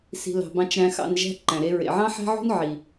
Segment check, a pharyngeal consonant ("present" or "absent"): present